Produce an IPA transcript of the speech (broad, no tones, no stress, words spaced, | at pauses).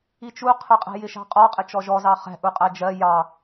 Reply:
it͡ʃuqʰəqʼɛ̤ jɪʃɑ̤qʼɒ qʼɪt͡ʃɔʒɔzɑ χɛ̤ ʔuqʼæd͡ʒɜ jɑ